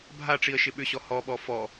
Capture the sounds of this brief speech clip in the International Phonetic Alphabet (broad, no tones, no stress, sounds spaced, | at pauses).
bʱ a ʈ͡ʂ i ə̯ ʃ ɪ ɓ ʏ ɕ ɔ h ɔ ɓ ɔ f ɔ